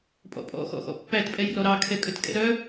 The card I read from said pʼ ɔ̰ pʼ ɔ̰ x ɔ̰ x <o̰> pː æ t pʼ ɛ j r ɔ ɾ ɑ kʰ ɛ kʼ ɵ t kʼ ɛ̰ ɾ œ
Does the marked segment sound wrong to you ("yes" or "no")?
yes